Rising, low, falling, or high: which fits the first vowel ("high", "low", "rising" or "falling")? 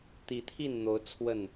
rising